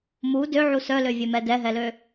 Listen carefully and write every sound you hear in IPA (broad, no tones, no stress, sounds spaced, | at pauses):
m u d ø ʕ u s œ l ø vʲ ø m ɛ d ɛ ɦ ɛ l ø